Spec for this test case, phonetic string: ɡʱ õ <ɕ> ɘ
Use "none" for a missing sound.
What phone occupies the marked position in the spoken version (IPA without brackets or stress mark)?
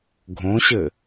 ɕ